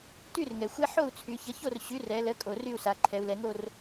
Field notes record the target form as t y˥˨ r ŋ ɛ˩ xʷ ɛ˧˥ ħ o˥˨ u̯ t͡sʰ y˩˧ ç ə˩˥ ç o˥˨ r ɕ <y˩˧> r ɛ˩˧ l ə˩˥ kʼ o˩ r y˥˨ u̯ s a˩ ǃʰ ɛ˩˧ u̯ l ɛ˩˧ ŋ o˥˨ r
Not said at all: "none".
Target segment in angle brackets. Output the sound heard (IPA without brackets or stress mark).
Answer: y˩˥